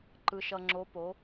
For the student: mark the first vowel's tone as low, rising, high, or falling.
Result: low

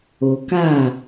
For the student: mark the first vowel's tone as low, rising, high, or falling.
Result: low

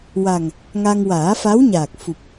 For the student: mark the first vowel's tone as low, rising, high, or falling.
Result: low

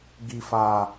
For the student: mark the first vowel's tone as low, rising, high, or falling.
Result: high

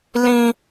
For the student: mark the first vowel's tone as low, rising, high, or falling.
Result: high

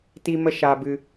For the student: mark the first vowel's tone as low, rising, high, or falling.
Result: high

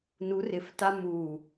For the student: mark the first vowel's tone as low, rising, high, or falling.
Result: rising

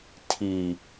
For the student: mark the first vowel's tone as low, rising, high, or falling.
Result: low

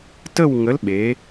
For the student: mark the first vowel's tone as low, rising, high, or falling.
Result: falling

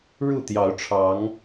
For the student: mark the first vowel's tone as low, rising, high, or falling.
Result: falling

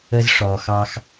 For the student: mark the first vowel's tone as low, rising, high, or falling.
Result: low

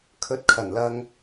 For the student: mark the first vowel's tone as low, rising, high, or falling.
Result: rising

